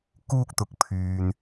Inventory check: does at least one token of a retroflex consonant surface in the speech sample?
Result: no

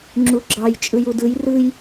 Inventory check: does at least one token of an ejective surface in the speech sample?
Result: yes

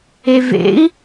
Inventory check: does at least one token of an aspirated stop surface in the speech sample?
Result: no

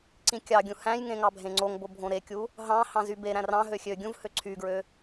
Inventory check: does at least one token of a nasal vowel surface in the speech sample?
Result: yes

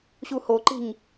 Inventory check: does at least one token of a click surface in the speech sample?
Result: yes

